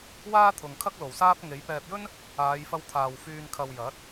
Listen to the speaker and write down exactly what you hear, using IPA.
w aː˥ t̪ʰ ʊ˨ ŋ kʰ ɐ˥ k̚ l o˨˩ w s aː˥ p̚ ŋ e˨˥ j p ɛː˧ p̚ j ɵ˥ n | aː˨˧ j f ɐ˧ w t̪ʰ aː˨ w f yː˨ n kʰ ɐ˨ w j ɐ˨˥ t̚

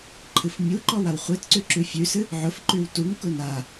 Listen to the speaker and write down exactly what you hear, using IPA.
ǃʰ ɨ f mʲ u ǃ ɔ w a w χʷ e t ǀ ʉ ǁ ʉ fʲ ʉ s ɨ | ʕ ʊ f ǃ ʉ w t u ŋ k ʊ n a

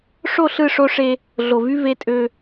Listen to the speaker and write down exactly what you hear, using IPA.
ʂ o˦˨ ɬ ɯ˦˨ ʂ o˦ ʂ e˦ | ɮ o˨ v y˦ v e˦ tʼ ø˦

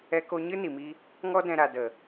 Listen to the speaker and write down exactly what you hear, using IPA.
ɛ˧ k o˧ ɲ ɨ˦ n i˨ m i˧ | ŋ ɔ˦ d ɛ̃˧ ɾ a˨ d ə˨

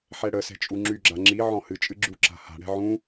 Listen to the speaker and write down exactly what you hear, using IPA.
ħ ɛ ɽ ə s ɛ̤ t͡ʃʼ u ŋ͡ǁ y ɡ͡ǁ a ŋ͡ǁ i ʕ ɔ̃ h ɨ t͡ʃʼ ɨ ɡ͡ǁ u ǁ a̤ h a̤ ɽ ɛ̤ ʕ ũ

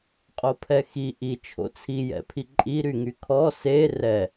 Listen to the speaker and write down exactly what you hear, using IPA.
qʼ o pʰ ɛ x i ʔ i t͡ʃʰ o̰ t͡sʰ i j ɛ̰ pʰ i ǃʼ i ɾ y ŋ y kʰ ɔ s e r ɛ

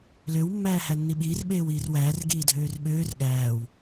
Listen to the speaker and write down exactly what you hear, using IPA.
l ø w mː æː h æ nː i ɓ iː r ɓ eː w iː r w æː r ɡ iː dʱ øː r ɓ øː r ɠ æː w

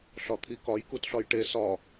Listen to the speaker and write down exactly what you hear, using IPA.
ɬ ɒ t̪ʰ i k ɒ j k u t ɬ ɒ j ʈ e s ɒ

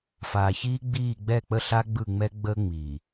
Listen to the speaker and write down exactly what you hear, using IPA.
f aː˨ ç iː˦ ɡ͡b iː˦˨ ɡ͡b ɛ˦˨ k͡p ə˦ ɬ a˦ ɡ͡b ɯ˦˨ ŋ͡m ɛ˦ ɡ͡b ə˦ ŋ͡m i˨

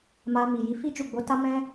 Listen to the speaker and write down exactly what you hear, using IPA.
m a˧ m i˨ j i˧ f i˦ d͡ʒ u˦˨ ɡ͡b o˨˦ t a˦ m ɛ̃˦

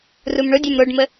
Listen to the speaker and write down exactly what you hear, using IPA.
r u m ɳ ʊ dʲ œ m ɾ o ɖ m ə

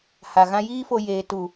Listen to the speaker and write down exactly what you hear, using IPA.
h a˨ ɣ ã˧ j iː˦ f o˧ j eː˨ t u˨

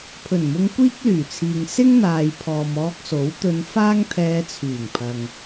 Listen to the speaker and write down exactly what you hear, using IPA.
pʰ ɵ˨˩ n m ʊ˧ ŋ kʷ iː˥ k̚ l yː˨˩ t͡sʰ iː˨ ŋ s ɪ˥ ŋ n̪ aː˨ j pʰ ɔː˨ m ɔː˧ k̚ s o˨˥ w t̪ ɵ˧ n f aː˥ ŋ t̪ʰ ɛː˧ t͡sʰ yː˨˩ ŋ pʰ ɐ˨ ŋ

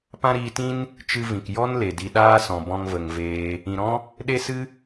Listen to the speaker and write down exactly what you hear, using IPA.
p ã˦ ɾ iː˧ t ĩ˦ n | t͡ʃ ɨ˧ v ĩ˨ k j ɔ˦ n l e˨ d i˧ ɗ aː˦ s ɔ̃˨ b ɔ̃˧ ŋ v ə˨ ŋ v eː˧ | ĩ˨ ɾ ɔ̃˦ | ɗ e˦ s ɨ˦

